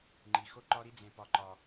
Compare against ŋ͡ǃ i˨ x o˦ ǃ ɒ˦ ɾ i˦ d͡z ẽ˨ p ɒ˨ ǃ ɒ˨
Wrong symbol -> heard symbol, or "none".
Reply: none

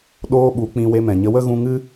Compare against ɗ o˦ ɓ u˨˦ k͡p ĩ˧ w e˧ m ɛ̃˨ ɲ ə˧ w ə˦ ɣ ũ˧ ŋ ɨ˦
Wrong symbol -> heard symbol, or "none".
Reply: o˦ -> oː˦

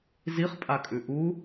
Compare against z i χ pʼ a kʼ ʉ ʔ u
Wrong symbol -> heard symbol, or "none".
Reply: none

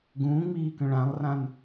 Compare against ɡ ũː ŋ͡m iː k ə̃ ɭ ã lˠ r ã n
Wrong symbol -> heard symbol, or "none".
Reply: none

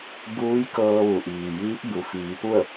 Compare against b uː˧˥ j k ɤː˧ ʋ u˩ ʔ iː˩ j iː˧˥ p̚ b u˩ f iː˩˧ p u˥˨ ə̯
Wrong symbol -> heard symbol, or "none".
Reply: none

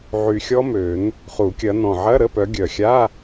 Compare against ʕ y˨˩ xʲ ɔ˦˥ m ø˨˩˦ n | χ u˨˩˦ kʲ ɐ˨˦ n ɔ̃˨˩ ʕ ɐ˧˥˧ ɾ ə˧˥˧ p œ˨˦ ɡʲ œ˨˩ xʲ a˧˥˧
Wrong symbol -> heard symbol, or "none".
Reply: none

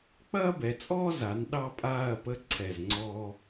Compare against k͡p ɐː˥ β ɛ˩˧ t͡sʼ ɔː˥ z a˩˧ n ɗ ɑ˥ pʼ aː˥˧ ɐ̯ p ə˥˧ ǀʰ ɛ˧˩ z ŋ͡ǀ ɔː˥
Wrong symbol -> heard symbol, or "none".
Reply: β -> b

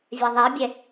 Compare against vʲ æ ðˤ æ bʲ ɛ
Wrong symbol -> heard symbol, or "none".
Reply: none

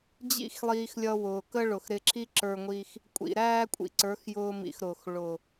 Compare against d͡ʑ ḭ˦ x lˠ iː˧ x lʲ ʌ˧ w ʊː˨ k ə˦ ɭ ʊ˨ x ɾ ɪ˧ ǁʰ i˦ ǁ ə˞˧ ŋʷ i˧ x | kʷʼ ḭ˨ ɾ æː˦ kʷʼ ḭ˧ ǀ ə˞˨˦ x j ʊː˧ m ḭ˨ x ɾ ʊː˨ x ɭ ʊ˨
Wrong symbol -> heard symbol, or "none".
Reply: none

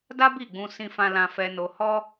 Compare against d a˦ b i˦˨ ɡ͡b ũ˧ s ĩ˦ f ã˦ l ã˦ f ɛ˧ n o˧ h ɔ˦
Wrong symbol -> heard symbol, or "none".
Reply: none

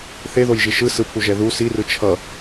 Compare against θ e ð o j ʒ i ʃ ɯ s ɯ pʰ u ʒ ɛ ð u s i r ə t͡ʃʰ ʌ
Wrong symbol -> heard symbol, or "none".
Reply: ə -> ɯ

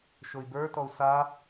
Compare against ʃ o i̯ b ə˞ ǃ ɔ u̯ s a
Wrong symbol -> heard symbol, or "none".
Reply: ǃ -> t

